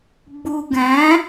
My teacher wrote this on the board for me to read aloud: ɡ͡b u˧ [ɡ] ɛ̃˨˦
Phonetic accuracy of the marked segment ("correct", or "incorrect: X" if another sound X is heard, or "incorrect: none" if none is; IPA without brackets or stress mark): correct